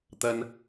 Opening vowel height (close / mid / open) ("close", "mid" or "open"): open